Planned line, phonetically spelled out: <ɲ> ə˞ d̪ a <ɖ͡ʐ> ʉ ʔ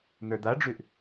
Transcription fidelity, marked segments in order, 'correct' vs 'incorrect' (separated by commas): incorrect, correct